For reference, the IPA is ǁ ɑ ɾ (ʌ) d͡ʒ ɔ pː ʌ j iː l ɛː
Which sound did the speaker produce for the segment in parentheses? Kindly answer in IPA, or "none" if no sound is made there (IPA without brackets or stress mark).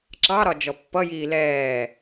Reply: ɒ